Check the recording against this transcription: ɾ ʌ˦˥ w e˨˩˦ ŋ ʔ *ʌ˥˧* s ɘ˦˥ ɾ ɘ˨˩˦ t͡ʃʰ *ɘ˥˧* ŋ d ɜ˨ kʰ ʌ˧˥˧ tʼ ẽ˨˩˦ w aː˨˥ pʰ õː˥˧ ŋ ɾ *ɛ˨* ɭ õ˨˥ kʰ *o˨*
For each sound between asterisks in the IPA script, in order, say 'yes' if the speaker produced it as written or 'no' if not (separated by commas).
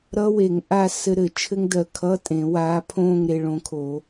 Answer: no, no, no, no